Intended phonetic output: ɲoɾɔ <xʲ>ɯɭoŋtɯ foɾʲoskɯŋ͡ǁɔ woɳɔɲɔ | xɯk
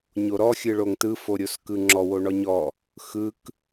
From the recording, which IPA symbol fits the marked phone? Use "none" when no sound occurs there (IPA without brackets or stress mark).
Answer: xʲ